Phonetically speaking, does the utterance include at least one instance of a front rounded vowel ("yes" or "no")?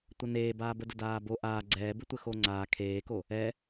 no